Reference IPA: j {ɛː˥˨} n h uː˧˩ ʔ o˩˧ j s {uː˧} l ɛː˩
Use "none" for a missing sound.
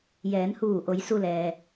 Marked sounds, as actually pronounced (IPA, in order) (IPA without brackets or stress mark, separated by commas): ɛː˩˧, u˧